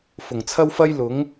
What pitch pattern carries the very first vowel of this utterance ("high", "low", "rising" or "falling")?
low